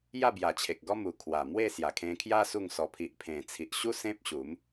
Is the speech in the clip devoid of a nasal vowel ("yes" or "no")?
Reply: no